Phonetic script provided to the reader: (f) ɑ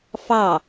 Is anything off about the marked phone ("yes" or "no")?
no